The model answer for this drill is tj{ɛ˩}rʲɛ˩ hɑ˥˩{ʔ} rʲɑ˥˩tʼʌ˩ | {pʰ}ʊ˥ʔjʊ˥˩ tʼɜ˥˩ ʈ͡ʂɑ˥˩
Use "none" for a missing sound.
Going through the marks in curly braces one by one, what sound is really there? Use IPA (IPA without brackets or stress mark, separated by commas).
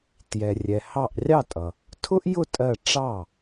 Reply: ɛ˩, ʔ, tʰ